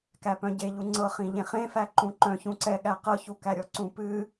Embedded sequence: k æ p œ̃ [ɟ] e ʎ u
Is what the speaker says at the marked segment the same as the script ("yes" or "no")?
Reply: yes